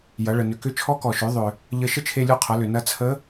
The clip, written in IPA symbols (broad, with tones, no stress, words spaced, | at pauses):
jɐ˩˧ɭə˩ nʏ˩kʏ˧˥ t͡ʃʰɔ˧˥kɔ˩ʃø˩˧ ðˤʏ˩ | ʎə˧ ʃə˥t͡ʃʰe˧lʲu˧qʰɐ˩˧ lʏ˩nɐ˧t͡sʰə˧˥